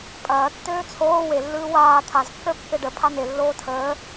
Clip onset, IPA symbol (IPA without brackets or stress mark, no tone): pʼ